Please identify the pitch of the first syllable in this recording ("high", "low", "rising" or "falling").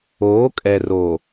rising